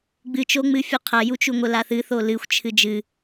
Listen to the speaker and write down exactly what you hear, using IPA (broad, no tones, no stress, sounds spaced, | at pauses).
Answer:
ɡ͡b ɨ t͡ʃ o ŋ͡m ɨ fʲ u qʰ ɐ j u t͡ʃ u ŋʷ ɘ l a θ ɨ θ o l ɨ xʷ t͡ʃʰ ɨ d͡ʒ ɨ